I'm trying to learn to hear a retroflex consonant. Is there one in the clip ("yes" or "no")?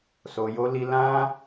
no